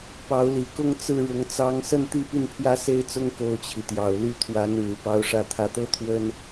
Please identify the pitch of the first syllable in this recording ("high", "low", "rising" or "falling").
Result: rising